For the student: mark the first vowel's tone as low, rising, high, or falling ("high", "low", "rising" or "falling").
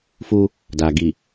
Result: high